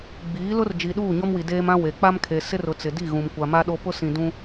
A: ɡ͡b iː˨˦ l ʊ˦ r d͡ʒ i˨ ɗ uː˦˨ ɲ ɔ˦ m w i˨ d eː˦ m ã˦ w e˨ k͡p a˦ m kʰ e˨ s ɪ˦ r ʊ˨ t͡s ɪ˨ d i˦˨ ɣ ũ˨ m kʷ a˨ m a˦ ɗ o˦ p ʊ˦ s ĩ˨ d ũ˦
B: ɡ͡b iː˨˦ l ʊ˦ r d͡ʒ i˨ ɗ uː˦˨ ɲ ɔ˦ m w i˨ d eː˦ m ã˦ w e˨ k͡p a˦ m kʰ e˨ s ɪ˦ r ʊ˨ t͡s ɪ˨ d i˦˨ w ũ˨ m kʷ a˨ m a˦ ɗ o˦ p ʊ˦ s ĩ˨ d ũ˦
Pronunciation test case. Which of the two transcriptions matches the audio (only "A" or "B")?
A